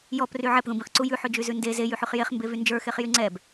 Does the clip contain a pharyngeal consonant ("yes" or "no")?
yes